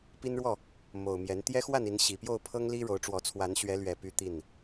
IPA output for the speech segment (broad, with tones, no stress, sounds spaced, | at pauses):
p i˦ n ɻ w ɔ˥˨ | m o˨˩ ʊ̯ m j ɛ˨˦ n t̪ j ɛ˦ x w a˥˨ n i˨˦ n ɕ i˨˩ p j o˥˨ ʊ̯ pʰ ɤ˦ ŋ l i˦ ɻ o˨˦ ʊ̯ ʈ͡ʂ w ɔ˨˦ t͡sʰ w a˨˦ n ɕ ɥ ɛ˨˦ l ɥ ɛ˨˩ p y˦ t̪ i˥˨ n